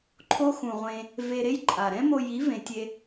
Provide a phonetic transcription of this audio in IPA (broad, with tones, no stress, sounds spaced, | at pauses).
ǃʰ o˦ x ũ˨ ʁʷ ẽ˧ | v e˧ ɾ e˦ j ǃʼ a˨ ɾ ɛ̃˦ m o˧ j i˨˦ v ẽ˨ tʲ e˧